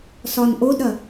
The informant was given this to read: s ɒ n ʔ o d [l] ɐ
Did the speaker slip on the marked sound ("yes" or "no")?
yes